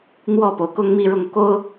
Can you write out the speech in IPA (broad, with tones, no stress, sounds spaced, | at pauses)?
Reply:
n̪ w ɔ˥˩ p o˩ ʊ̯ k ʊ˥ ŋ m i˥˧ ɻ ʊ˥˩ ŋ k o˥ ʊ̯